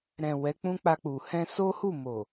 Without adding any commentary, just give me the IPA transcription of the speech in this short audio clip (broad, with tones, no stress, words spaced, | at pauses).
ɾɛ̃˨ wɛ˨˦k͡pũ˦k͡pa˧ k͡pu˨ hɛ̃˧so˦hu˦˨mo˨